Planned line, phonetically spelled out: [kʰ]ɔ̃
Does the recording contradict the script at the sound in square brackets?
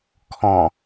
no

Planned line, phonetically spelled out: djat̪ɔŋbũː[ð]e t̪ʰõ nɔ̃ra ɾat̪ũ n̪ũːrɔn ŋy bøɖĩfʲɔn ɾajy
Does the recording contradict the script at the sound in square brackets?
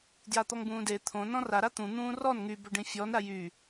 yes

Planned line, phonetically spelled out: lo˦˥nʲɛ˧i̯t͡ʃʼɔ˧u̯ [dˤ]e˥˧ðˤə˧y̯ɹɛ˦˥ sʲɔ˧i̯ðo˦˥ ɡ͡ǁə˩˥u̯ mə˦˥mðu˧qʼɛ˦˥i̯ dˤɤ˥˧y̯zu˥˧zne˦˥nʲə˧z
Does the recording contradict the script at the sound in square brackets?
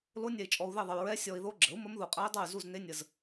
yes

